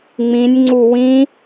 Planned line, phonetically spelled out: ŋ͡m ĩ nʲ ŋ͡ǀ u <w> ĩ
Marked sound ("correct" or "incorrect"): correct